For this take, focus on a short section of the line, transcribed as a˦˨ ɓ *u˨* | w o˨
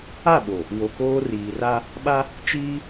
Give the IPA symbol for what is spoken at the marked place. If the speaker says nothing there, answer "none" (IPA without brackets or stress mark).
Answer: o˨